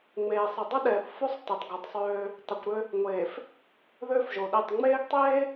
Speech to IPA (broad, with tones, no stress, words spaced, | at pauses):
ŋ͡meː˨sˤə˨ dˤə˦ɗɛː˨θ fo˦sˤ te˨tˤɡo˨tˤsˤøː˦ | tˤø˨kʷɾø˦ | ŋʷeː˨f | ðøː˦fʒo˨ɗe˦˨tˤ ŋ͡meː˦ɡtˤeː˦